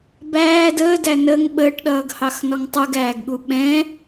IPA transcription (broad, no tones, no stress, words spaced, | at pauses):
bæː dəːdæ nəŋ ɓəːʈɗʌːɡhɑxnɔŋ tˤuɡæːɡɠu ɓɛ̃